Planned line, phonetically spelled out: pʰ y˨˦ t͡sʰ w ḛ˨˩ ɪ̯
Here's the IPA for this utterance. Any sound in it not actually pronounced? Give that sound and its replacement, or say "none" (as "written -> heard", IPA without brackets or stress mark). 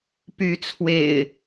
pʰ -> p